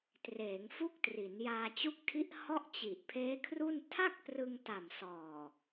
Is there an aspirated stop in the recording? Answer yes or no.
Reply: yes